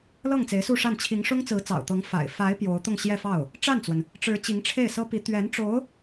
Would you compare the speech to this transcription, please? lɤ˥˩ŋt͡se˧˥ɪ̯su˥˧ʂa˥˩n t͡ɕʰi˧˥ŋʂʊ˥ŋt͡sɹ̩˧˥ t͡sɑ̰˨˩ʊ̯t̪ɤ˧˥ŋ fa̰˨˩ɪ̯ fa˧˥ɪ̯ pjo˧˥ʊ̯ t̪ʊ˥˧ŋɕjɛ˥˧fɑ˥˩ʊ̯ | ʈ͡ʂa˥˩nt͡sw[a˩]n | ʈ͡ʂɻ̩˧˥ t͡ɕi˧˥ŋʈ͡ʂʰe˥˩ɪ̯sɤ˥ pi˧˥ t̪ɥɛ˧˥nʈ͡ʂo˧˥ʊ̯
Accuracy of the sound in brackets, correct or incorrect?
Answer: incorrect